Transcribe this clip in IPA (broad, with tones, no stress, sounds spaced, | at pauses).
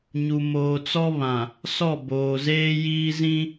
ɲ u˨ m oː˨ t͡s ɔ˦ β ã˨ | s ɔ˦˨ b oː˨ z eː˦ j iː˦ z ĩ˦